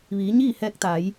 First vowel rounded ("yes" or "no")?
no